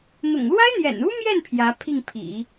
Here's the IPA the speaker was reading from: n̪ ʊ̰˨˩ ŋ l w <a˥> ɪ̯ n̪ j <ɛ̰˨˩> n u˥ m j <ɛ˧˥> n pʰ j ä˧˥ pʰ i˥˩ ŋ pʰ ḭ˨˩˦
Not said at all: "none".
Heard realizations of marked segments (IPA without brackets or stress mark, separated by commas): a˥, ɛ̰˨˩, ɛ˥˩